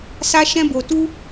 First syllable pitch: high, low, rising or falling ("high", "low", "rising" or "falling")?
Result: high